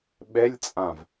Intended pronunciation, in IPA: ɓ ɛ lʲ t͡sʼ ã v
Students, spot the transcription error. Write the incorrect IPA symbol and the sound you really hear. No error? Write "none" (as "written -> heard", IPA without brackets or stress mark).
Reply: none